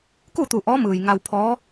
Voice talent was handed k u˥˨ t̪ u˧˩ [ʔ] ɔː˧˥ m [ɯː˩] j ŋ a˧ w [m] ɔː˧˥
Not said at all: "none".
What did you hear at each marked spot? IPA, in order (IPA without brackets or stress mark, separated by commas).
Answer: ʔ, ɯː˩, pʰ